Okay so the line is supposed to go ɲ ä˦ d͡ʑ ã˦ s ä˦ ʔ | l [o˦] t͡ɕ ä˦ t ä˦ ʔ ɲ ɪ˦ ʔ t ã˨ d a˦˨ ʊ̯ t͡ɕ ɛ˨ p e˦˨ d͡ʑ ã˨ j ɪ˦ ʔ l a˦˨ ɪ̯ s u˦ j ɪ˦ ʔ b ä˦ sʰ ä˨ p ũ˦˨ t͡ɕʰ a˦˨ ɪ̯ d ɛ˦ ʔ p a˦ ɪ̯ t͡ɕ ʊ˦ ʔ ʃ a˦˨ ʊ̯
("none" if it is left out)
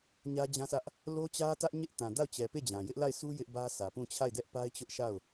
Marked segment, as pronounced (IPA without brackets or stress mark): o˦